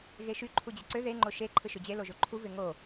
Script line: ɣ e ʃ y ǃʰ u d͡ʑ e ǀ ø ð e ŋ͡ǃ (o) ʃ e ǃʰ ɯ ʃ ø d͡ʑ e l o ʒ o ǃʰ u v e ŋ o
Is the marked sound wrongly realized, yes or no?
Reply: no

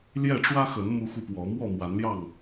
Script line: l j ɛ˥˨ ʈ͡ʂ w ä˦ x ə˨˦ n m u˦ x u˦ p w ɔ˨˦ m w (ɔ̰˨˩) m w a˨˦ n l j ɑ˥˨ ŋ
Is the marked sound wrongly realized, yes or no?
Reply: yes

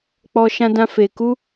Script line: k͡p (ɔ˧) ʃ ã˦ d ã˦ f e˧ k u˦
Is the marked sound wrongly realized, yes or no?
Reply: yes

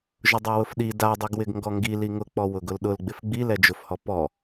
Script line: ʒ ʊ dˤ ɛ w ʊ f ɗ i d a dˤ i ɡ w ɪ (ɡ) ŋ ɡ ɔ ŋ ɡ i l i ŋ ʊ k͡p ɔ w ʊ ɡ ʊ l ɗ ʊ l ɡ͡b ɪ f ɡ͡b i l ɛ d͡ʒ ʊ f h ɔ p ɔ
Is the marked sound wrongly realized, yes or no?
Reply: no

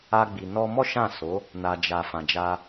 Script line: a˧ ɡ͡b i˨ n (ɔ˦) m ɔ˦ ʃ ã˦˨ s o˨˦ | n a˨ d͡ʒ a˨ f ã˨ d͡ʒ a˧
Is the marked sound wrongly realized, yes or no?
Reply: yes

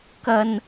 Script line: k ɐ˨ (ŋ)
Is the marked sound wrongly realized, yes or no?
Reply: yes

